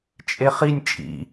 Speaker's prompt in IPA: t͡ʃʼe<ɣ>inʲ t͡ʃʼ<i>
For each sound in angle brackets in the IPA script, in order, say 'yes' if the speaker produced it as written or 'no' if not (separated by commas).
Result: no, no